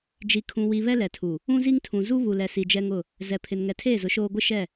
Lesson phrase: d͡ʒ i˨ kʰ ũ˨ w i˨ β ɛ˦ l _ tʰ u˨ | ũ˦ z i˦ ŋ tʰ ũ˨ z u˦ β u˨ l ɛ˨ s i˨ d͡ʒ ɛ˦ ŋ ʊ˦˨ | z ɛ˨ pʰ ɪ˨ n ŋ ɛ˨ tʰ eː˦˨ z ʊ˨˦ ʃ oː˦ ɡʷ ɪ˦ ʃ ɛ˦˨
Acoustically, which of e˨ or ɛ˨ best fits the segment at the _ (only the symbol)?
ɛ˨